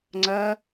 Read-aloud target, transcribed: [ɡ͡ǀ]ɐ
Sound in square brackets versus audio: incorrect: ŋ͡ǀ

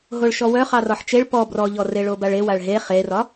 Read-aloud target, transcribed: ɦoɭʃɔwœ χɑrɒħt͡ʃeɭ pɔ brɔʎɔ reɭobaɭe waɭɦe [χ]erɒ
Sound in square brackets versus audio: correct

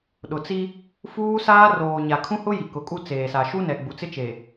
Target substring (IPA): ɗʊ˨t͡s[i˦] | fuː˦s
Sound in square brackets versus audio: correct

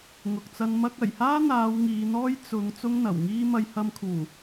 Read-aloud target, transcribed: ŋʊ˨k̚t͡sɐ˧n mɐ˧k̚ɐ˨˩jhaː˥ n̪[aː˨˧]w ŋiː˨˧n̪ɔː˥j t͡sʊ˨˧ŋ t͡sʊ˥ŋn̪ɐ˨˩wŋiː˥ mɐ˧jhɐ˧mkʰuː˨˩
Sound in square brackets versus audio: correct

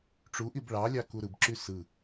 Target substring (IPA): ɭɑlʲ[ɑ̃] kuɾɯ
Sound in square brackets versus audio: incorrect: ɑ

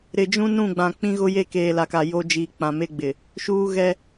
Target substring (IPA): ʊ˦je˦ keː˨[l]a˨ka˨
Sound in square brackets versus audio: correct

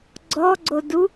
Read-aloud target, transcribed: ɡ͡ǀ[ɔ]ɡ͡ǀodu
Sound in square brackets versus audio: correct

